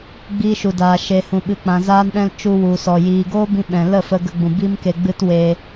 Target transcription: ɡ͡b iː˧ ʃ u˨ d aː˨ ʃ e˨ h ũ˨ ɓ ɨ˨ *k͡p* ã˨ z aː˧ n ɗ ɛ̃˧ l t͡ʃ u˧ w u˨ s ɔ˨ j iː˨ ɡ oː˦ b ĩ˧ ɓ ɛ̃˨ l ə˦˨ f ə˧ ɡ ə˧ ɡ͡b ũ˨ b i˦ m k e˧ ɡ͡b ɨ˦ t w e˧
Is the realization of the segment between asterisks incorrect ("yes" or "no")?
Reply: no